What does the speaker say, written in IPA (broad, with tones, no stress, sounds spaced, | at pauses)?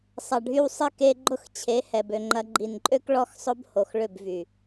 sˤ ɐ˨ ɖʱ y˧ w sˤ ɪ˦˨ k e˧ ɡ͡ǃ ʊ˦˨ x t͡ɕʰ e˨˦ h ɛ˧ b ø˧ ŋ͡ǃ ɐ˦ ɡ͡ǃ i˨ n ǃʼ ø˦ k ɭ ɔ˦ x sˤ ʊ˦ b h o˨ x ɭ ʏ˦˨ b v y˨